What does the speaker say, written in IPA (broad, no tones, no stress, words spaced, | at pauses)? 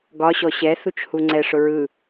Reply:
ɡɒ ɕɔɕɛ θut͡ʃhuŋ͡ǀɛ ʂʊɹɯ